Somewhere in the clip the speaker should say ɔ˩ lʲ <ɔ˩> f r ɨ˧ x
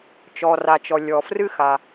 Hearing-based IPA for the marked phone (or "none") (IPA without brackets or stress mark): ɔ˩